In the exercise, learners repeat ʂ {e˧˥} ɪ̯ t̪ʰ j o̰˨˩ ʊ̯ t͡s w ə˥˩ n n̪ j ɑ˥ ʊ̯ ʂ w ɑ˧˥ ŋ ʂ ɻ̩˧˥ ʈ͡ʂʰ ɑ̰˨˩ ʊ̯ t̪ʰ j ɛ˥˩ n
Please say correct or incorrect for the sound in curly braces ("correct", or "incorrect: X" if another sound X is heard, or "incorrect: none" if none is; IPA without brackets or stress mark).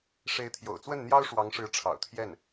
correct